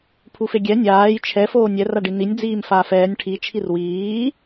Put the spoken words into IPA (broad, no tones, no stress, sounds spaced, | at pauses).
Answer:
pʰ u f e ɡʲ ɛ nʲ aː j t͡ʃʰ ɛ f oː nʲ ɛ r a ɖ i n i nʲ d͡z iː m f aː f ɛː nʲ ʈʰ i t͡ʃʰ i r w iː